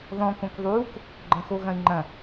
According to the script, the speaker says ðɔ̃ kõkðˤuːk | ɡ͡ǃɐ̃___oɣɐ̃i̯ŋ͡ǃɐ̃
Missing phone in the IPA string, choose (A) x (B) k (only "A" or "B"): A